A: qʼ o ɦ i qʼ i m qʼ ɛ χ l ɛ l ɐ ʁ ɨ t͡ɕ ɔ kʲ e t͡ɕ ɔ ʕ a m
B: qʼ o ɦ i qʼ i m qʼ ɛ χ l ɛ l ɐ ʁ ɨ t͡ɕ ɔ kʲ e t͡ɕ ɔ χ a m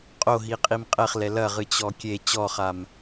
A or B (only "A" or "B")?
B